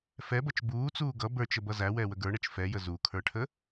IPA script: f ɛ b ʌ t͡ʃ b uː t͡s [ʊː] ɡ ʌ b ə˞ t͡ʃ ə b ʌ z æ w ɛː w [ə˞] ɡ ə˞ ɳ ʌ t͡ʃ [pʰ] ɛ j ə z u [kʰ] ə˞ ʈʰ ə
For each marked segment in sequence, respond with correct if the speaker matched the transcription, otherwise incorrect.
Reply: incorrect: uː, incorrect: ə, incorrect: f, correct

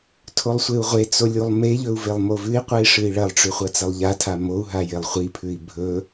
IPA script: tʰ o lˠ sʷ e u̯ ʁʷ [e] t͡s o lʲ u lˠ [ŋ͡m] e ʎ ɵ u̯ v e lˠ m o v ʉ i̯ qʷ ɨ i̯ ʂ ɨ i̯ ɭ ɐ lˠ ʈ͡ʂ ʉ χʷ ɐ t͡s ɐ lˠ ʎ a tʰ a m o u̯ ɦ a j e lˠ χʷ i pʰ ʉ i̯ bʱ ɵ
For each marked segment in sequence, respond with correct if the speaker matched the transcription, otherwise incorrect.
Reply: correct, incorrect: m

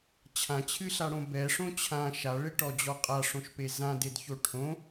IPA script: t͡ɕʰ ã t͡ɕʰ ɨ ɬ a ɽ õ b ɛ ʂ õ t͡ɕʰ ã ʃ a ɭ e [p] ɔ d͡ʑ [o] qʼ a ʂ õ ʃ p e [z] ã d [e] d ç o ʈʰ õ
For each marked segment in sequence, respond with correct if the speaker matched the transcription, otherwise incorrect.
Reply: incorrect: ʈ, incorrect: ɔ, correct, correct

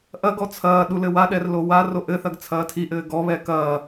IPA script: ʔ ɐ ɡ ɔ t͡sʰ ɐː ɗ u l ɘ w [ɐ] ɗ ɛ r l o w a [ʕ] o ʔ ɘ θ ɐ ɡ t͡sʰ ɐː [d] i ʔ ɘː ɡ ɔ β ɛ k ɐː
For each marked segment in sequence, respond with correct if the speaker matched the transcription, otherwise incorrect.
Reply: incorrect: a, incorrect: r, incorrect: tʰ

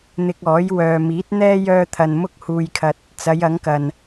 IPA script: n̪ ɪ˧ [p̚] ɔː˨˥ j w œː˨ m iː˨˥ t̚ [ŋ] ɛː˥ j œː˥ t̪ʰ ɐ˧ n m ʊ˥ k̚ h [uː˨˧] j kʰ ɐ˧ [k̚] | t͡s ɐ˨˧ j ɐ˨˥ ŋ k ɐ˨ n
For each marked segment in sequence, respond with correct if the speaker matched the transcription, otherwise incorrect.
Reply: incorrect: k̚, incorrect: n̪, incorrect: uː˧, incorrect: t̚

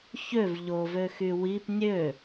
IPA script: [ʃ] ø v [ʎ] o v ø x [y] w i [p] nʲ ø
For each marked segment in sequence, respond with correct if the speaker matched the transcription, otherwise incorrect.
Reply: incorrect: ç, correct, correct, correct

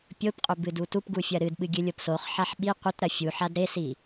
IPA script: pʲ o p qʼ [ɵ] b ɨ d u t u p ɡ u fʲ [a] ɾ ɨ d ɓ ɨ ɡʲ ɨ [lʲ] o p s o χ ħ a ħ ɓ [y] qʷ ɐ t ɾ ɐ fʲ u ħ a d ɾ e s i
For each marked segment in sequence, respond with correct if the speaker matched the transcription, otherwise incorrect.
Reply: correct, incorrect: ɐ, correct, incorrect: i

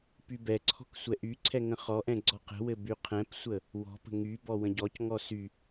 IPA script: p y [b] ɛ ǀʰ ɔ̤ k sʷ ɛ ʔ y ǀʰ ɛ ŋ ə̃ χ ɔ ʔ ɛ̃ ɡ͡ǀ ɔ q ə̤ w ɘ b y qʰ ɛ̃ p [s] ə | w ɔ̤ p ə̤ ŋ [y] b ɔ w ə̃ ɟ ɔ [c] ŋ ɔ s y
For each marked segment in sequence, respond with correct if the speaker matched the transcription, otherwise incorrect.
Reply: correct, incorrect: sʷ, correct, correct

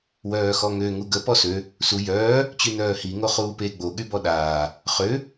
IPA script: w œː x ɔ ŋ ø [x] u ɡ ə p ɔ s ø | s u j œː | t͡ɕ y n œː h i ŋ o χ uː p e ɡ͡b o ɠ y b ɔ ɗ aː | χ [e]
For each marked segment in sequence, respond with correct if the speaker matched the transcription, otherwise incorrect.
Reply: incorrect: ŋ, incorrect: ø

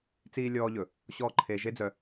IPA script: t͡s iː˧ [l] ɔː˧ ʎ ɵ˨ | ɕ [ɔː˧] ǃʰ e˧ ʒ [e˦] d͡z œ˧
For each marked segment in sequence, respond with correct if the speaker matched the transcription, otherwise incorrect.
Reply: incorrect: lʲ, incorrect: ɔː˦, correct

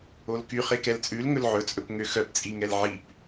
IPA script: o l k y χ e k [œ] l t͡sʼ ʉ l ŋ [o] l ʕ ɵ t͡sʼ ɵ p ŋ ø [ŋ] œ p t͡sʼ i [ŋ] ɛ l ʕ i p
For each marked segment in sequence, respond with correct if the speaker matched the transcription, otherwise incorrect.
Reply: incorrect: ɛ, incorrect: ɵ, incorrect: x, correct

